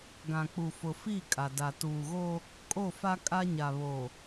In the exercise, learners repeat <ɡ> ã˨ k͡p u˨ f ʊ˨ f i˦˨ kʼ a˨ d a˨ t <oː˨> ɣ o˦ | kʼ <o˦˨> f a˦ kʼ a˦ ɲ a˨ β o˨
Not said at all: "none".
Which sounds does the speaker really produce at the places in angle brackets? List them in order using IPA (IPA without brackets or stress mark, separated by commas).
ɡ, uː˨, o˦˨